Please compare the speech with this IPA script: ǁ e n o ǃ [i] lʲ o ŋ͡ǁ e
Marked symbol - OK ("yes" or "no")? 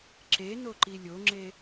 yes